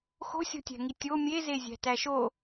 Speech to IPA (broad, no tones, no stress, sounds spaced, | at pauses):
x o̤ sʲ o̤ tʲ æ̤ ŋ i tʲ o mʲ e z e zʲ æ̤ t æ ʃ o